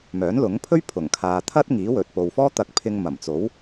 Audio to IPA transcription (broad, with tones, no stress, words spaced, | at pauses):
mœː˨˥nlʊ˨˥ŋpʰɵ˥ɥ pʰʊ˨˩ŋkʰaː˨t̪ʰɐ˥t̚ ŋiː˨˥ wɵ˨t̚po˨wfɔː˥ t̪ɐ˧k̚pʰɪ˧ŋ mɐ˨˩mt͡so˨˥w